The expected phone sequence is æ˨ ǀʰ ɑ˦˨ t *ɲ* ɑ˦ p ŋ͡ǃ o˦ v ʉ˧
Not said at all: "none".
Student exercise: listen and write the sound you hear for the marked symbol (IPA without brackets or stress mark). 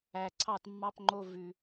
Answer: mː